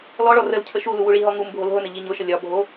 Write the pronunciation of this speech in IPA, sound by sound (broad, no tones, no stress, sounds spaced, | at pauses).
l ɔ ɭ ɔ r ə l cʰ ə ʃ u l u w u ɭ i ɦ ɔ ŋ u m bʱ o l ɦ ʊ n ə ʎ i ɲ ʊ ʃ ə lʲ ɒ bʱ o